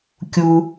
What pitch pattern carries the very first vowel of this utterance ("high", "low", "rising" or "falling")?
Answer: high